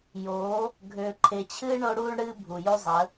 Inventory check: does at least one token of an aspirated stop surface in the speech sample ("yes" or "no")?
yes